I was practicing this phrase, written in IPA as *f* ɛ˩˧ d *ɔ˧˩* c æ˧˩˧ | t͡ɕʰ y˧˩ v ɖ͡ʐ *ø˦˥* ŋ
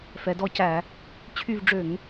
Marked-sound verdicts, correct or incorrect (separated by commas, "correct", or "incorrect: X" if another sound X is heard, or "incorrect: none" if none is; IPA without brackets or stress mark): correct, correct, incorrect: ø˧˩˧